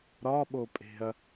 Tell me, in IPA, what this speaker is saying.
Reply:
ɾɒɓopʼe̤ɐ̯

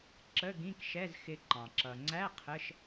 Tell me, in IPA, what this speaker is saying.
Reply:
ǁə˧˥˧ ɡĩ˧˥˧kʃɛ˧˥˧zxɪ˧ǃɑ̃˩ ǁʌ˩ŋ͡ǀæ˧˥˧ qʰə˧˥˧ʃ

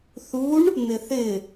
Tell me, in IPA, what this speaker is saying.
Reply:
θuɳ | n̪ɪθɪ

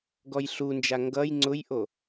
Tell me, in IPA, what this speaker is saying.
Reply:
ɡɔjɬund͡ʒa ŋɡʌj ŋ͡ǀʊjʔo

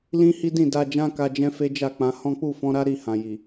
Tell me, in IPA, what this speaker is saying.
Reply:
lĩ˦hi˦dĩ˦˨da˧ d͡ʒã˦ka˧d͡ʒɛ̃˦ fe˦d͡ʒa˦˨ k͡pã˨˦ hɔ̃˦k͡pu˦˨ fɔ̃˧ɾa˦ ɾi˧hã˨ji˨

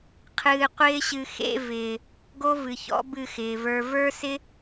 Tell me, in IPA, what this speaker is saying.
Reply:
qʰɨː˧qʷɪː˦ɕɨ˧ xḛ˧vɪː˨ | ɡo˦vɨ˨çɔ̰˨˦ bɨ˦˨xɪː˨və˞˧ və˞˦sɪ˦

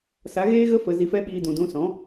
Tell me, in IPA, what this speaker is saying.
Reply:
sa˨˦ɣeː˦ɣə˦ fə˧zi˧fɛ˦ɓiː˧ dũ˨dũ˧sɔ̃˨˦

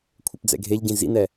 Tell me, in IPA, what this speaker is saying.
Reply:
kʷʰœpd͡zɛ̰ɡʱeʎɟĩ zḭnɛ

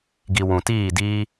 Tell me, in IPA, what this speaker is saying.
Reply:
ɡi˨ wũ˨tiː˦˨ diː˧

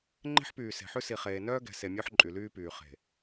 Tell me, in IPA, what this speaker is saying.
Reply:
ŋ͡ǃe̤˦ħpyː˨ se̤˨ħʉ˦ si˨χeː˨nœː˦ɡɛ̤˨ se˨mʲo˦ħ ǃʼy˨lyː˦pyː˨ χe̤˨

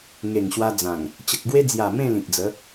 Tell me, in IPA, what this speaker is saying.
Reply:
ŋe˨˩ŋɕwa˧d͡zã˨˩ŋ | t͡ɕə˨k̚ɡwe˧d͡zja˨˩ mẽ˥˧lĩ˨k̚d͡zə˨˦

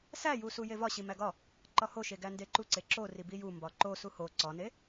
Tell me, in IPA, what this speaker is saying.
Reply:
sæju sujevɒ ɕimæɡɒ | ǃɒhoʃe ɡændeǃuǀe ǁori bijumbɒ ǃosu ho ǀɒne

